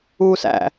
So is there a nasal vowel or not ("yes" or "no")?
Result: no